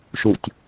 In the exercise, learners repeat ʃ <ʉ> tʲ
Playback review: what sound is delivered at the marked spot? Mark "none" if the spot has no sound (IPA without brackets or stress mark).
u